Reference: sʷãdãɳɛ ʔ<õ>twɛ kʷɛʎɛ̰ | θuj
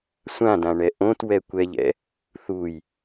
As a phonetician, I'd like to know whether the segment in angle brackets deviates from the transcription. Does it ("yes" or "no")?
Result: no